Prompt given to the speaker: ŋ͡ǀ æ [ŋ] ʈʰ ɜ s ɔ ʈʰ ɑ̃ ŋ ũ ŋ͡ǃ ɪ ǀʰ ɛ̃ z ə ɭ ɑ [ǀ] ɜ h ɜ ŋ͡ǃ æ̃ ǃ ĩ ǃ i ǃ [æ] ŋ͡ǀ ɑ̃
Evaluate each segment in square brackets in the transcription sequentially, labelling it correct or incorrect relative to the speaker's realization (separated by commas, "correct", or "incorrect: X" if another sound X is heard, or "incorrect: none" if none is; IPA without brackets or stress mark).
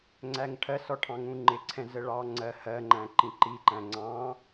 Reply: correct, incorrect: ŋ͡ǀ, incorrect: æ̃